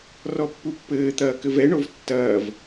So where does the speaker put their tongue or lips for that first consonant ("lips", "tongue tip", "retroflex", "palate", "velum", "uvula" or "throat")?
tongue tip